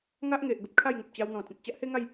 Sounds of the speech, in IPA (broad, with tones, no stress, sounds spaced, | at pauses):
ŋ a˦ ʔ ŋ e˨ ʔ ɡ ə˦ p̚ kʰ a˥˧ j ŋ u˨ p̚ t͡ɕ a˧ w n̪ ɔ̃˨˩ t͡s ẽ˨ t̚ t͡ɕ a˦ ʔ h e˦ ŋ a˥˧ j